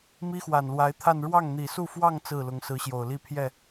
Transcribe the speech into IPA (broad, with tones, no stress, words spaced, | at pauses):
mi˥xwa˨˩nlwa˧˥ɪ̯t̪ʰa˥˧n ɻwɑ˥˩ŋn̪i˨˩su˥˧fwɑ˥˧ŋ t͡sɹ̩˥˩lʊ˧˥ŋ sɹ̩˧˥ɕjo˨˩ʊ̯li˥˧ pʰjɛ˥˩